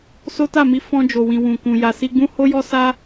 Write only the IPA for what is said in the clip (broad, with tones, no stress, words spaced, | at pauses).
so˦ta˦˨mi˧ fɔ̃˧ d͡ʒo˨wĩ˨ wũ˨kũ˨ ja˨si˧ɡ͡bũ˦ ho˦jɔ˦ sa˦